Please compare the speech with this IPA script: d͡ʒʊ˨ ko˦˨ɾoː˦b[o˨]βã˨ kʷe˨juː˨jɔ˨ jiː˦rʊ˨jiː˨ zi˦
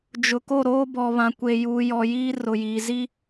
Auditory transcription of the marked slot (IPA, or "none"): ɔ˨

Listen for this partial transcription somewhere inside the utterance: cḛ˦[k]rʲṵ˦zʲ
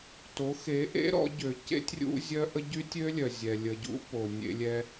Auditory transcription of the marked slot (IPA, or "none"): tʲ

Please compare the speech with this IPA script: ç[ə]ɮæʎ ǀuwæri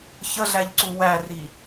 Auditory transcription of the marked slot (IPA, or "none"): ə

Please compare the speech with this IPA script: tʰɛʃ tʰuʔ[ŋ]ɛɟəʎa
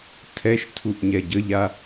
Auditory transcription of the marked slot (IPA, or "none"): ɲ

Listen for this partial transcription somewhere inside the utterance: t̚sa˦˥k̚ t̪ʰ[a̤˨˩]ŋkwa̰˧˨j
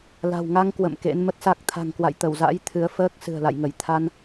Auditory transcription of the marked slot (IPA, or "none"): a̤˨˩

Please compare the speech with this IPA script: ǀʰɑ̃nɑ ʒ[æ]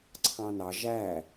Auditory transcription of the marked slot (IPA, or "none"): æ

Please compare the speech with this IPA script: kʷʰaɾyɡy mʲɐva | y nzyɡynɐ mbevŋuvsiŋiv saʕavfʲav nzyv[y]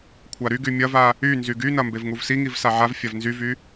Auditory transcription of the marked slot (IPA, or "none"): y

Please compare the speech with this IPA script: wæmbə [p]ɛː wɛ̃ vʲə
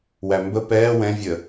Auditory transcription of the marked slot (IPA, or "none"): p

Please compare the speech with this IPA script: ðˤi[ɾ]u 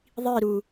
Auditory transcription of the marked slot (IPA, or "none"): ɾ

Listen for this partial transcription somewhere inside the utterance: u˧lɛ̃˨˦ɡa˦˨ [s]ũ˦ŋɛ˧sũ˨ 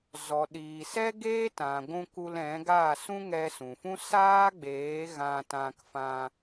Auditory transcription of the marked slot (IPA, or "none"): s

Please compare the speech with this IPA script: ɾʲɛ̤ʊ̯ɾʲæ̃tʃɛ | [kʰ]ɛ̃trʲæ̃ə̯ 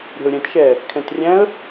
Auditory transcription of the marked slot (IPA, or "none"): kʰ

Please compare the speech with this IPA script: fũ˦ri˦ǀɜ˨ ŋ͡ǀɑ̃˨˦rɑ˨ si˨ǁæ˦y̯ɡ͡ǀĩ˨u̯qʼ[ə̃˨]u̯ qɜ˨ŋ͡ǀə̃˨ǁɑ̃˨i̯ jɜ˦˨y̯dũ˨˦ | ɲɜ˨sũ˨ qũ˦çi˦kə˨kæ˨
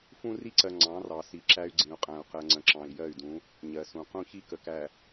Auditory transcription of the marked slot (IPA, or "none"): æ̃˨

